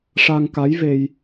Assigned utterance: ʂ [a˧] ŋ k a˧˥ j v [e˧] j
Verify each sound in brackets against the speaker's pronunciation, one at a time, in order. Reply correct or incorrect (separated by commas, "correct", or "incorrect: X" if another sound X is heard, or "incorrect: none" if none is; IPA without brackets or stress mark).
correct, correct